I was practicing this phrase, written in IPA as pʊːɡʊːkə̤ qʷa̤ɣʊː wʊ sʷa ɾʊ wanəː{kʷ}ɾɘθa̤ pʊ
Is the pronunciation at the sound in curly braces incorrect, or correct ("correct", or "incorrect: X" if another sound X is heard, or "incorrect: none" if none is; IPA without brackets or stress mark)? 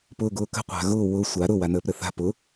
incorrect: p